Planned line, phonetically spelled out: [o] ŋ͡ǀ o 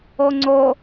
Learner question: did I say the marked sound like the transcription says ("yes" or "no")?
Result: yes